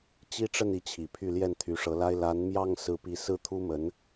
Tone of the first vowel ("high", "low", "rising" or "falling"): high